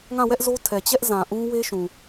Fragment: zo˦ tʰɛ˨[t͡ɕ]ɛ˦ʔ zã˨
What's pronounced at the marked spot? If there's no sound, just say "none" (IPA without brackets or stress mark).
t͡ɕ